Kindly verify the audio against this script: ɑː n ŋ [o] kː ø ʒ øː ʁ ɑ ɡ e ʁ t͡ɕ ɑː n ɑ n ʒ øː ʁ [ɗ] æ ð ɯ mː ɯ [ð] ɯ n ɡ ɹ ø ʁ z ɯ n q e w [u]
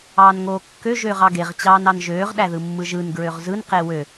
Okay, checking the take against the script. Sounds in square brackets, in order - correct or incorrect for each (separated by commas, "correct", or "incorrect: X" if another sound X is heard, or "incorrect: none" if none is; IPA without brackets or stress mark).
incorrect: oː, correct, incorrect: ʒ, incorrect: ø